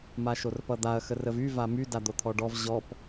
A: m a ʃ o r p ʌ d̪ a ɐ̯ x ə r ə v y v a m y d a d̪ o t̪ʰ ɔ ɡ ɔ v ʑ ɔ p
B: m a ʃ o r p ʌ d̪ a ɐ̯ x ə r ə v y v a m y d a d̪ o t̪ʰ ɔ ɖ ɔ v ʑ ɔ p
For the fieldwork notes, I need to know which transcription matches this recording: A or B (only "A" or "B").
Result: B